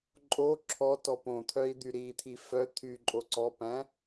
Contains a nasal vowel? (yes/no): yes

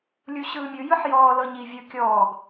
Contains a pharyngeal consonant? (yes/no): yes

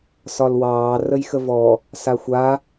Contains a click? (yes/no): no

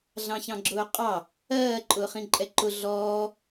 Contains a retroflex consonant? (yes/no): no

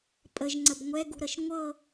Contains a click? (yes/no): yes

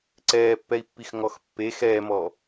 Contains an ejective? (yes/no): no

